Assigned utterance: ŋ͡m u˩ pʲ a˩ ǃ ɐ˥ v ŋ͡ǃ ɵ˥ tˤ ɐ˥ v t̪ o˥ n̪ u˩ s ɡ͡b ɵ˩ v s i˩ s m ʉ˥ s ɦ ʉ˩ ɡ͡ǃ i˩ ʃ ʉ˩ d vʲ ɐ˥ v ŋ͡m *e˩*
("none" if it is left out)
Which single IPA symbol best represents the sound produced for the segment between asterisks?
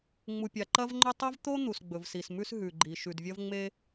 e˥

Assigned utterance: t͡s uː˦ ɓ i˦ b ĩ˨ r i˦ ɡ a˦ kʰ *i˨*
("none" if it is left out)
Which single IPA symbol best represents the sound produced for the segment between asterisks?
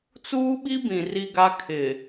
ɪ˨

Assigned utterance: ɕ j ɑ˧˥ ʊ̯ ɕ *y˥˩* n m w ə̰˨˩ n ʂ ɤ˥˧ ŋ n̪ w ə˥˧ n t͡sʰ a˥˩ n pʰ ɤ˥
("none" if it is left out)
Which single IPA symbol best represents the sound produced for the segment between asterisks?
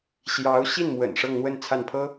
i˥˩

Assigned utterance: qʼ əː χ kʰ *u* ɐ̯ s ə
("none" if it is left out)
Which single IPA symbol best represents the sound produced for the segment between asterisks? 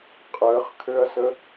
ø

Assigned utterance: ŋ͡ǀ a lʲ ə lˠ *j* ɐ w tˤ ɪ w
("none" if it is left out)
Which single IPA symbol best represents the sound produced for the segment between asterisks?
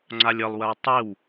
w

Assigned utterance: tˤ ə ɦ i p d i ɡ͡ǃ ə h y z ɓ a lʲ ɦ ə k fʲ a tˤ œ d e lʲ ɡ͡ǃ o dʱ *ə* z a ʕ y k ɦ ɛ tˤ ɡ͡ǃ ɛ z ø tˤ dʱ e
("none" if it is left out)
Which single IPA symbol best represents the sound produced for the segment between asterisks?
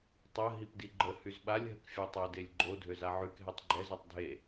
ø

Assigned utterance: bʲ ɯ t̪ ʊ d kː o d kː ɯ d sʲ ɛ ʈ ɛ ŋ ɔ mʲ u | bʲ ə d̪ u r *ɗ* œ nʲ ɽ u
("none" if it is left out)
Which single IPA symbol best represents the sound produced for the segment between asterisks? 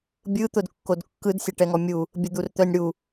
t̪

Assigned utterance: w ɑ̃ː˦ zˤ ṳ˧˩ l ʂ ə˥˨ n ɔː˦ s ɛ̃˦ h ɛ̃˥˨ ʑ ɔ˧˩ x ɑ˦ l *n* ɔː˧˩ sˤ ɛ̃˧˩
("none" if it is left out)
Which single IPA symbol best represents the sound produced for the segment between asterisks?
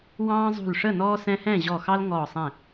ŋ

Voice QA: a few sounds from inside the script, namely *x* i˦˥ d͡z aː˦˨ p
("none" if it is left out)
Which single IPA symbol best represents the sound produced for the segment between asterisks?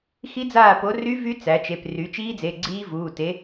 x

